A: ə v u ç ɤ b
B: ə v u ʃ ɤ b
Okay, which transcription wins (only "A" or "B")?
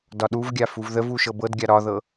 B